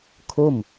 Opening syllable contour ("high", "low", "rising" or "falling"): falling